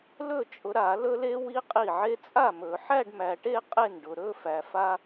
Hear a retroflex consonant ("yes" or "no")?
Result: yes